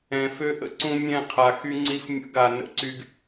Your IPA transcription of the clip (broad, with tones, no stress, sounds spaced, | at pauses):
ɛ̃˨ f ø˦ ʔ ə̰˨ ǀ ũ˦ mʲ ɛ̃˦˨ qʰ a˨ x y˦ ŋ͡ǀ i˦ f mʲ ə̰˦˨ ɡ a˨ n ə̰˦ ǀ y˦ ɡ